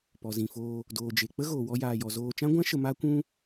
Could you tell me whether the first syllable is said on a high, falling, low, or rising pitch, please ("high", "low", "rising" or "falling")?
low